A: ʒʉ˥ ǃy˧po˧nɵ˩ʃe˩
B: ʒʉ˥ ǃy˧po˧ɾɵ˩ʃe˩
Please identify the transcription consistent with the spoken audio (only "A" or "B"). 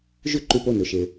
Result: A